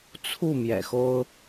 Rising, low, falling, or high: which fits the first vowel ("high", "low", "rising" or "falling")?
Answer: falling